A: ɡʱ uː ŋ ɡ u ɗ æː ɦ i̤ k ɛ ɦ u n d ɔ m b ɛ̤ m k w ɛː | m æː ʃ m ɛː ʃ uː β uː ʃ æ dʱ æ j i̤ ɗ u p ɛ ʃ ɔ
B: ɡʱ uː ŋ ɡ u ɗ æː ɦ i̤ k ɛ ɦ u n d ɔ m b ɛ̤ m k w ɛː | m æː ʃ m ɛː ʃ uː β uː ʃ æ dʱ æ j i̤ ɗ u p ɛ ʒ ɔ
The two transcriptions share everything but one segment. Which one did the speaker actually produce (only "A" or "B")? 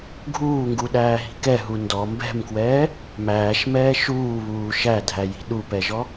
B